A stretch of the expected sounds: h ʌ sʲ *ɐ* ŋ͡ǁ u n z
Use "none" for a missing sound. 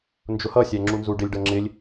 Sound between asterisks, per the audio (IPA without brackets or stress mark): æ